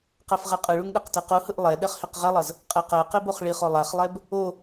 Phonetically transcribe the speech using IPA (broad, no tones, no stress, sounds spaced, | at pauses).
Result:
q ɛ f ʁ ɛ qʼ ɯ ɭ u ŋ ɗ e q t i q u h ɯ ʔ lˠ ɛ ɗ ɛ χ h i q ʁ ɛ lˠ ʌ z | qʼ e q ɛ q i b o χ ɭ i χ o lˠ a χ lˠ ɛ b | o